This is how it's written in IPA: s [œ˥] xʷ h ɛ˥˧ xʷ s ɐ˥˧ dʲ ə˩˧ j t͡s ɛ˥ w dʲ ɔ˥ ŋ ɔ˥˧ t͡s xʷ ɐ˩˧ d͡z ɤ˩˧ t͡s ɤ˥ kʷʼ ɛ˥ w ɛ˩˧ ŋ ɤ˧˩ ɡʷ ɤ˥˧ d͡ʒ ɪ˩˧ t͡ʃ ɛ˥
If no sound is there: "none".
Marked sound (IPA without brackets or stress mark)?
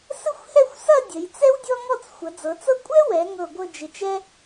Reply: ə˥